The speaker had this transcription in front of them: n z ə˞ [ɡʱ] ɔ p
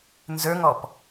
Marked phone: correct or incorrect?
incorrect